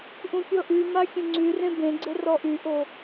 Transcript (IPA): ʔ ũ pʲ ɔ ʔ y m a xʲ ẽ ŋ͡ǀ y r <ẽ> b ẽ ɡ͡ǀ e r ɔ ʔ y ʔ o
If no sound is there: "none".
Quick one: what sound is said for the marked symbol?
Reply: ẽ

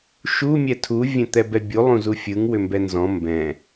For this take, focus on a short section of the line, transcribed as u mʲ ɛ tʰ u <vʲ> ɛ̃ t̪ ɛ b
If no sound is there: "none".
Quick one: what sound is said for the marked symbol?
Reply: vʲ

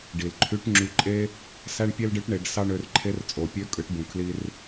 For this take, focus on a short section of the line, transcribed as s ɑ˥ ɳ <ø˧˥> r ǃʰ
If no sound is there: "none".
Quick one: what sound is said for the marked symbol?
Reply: ø˧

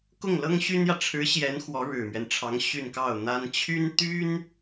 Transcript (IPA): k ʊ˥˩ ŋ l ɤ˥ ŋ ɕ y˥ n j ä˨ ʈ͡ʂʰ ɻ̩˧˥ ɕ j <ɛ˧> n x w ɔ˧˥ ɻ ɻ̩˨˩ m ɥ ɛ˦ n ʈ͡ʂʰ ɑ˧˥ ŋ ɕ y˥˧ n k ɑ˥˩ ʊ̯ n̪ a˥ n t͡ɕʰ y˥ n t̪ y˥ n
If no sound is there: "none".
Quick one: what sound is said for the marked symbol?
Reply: ɛ˧˥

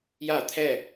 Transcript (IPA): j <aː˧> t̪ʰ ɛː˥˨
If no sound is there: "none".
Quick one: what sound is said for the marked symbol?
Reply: aː˥˨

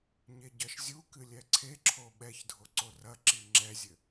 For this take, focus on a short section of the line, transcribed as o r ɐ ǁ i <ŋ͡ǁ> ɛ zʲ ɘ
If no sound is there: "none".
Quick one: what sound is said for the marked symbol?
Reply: ŋ͡ǁ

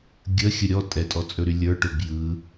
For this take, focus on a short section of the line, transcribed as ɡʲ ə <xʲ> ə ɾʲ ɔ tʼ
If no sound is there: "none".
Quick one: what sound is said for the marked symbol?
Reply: xʲ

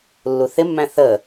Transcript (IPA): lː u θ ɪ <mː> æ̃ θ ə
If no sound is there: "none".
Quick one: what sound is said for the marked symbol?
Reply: mː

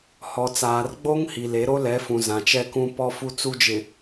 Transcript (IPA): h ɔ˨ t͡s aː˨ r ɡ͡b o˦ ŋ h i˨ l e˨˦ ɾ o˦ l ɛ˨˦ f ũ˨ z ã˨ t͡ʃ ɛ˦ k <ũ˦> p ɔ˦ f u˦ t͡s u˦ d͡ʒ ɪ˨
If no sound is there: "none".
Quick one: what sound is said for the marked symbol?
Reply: ũ˦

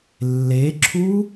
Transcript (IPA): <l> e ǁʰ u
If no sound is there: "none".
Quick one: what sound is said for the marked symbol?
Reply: lː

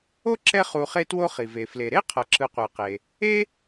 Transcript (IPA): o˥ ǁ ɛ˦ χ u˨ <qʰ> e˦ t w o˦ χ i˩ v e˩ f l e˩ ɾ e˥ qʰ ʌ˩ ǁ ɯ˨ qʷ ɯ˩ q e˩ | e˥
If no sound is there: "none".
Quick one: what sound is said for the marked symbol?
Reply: χ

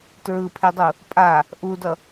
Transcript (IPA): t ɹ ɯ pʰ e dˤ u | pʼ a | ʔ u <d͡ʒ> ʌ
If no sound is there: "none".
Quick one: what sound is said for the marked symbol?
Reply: d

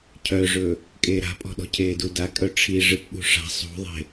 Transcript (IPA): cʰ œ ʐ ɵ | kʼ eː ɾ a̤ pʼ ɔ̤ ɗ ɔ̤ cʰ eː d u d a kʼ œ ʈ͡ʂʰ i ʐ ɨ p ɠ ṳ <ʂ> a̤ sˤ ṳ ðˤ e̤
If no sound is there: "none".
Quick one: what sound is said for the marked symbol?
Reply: ʂ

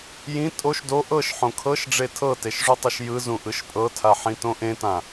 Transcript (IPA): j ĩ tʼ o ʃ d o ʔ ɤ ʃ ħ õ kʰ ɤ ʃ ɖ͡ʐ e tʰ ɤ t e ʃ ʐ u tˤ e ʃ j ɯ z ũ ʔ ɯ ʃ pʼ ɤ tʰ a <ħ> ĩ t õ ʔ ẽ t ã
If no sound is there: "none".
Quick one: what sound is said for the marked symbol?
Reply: ħ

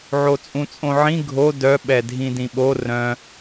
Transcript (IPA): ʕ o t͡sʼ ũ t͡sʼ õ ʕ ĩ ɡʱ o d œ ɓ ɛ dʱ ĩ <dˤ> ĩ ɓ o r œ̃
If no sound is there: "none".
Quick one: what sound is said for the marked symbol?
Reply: d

